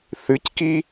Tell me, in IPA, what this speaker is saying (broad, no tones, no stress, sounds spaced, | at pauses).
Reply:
θ ɨ c k i